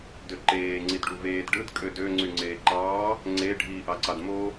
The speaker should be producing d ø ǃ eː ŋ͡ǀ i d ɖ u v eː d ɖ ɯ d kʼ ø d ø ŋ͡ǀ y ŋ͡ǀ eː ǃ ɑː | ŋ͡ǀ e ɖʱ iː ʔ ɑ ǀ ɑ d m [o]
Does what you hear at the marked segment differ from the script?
no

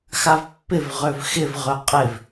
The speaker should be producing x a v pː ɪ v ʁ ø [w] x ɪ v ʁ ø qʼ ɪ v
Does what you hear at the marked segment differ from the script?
yes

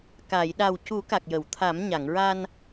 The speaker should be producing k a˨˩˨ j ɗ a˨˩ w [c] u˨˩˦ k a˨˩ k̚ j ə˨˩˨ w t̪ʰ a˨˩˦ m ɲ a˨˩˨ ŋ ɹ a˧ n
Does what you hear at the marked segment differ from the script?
no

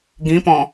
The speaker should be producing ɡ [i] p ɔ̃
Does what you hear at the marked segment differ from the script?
yes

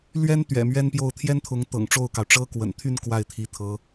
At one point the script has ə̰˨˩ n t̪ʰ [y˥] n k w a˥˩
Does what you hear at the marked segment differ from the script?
yes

